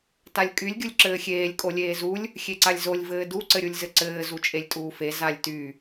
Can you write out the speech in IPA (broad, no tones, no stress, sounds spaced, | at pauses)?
t a lʲ kʼ y lʲ ɡʲ u lʲ ǁ ɘː xʲ eː lʲ kʼ o lʲ eː z u lʲ | xʲ e ǀ a lʲ z o lʲ v ɘː d u ǀ ɘ ɾʲ u lʲ z ɘ ǀ ɘː z u t͡ʃʼ e lʲ tʼ uː f e z a lʲ t y